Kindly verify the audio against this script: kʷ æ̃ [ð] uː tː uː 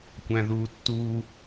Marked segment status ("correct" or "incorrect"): correct